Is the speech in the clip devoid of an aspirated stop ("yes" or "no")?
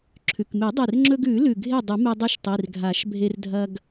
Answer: no